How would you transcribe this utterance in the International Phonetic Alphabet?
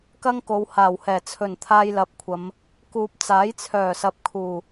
k ɐ˥ ŋ k o˨˧ w h aː˨˩ w h ɛː˨˩ t͡sʰ ɵ˨˩ n t̪ʰ aː˧ j l ɐ˨˥ p̚ kʷʰ ɐ˨˧ m | k uː˨ p̚ t͡s aː˨˥ j t͡sʰ œː˨˩ s ɐ˨ p̚ kʰ uː˨˩

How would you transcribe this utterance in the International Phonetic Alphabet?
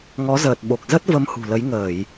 ŋ ɔ˨˦ z əː˨˩ t̚ ɓ o˨˩ k̚ z ə˦˥ t̚ v ə˧ m h ṳ˨˩ l ə˨˦ j ŋ əː˧˩˨ j

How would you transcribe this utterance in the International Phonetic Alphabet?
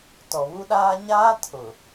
t ɔ˨ β u˦ ɗ aː˦ ɲ aː˦ tʰ ʊ˨

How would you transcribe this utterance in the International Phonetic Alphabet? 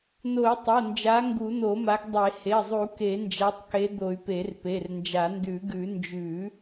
n o˨˩˦ y̯ tˤ o˩˧˩ n d͡ʒ a˨˦ ŋ ɡ u˨˩˦ n o˨˩˦ m a˨˦ ɡ dˤ e˨˩˦ h e˩˧˩ zˤ u˨˩˦ k e˨˩˦ n d͡ʒ a˨˦ tˤ k e˨˦ d̪ o˨˩˦ y̯ p e˨˩˦ r p e˩˧˩ r n d͡ʒ a˨˩˦ n d ʉ˨˩˦ ɡ ʉ˨˩˦ n d͡ʒ ʉ˨˩˦

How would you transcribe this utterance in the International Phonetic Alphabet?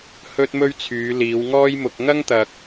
h ɵ˥ t̚ m ɵ˥ ɥ t͡sʰ yː˨˧ l iː˨˧ w ŋ ɔː˥ j m ʊ˧ k̚ ŋ ɐ˥ ŋ t̪ ɐ˨ k̚

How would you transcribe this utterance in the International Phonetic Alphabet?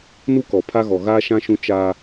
n u˦ k ɔ˨ pʰ a˦ ɣ ɔ˨ ɣ aː˦ ʃ ã˦ ʃ ũ˦ t͡ʃ a˦

